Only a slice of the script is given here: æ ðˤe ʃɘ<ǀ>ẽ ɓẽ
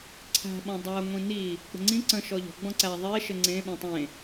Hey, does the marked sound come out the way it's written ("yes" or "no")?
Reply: no